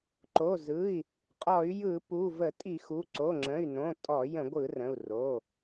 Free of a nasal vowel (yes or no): no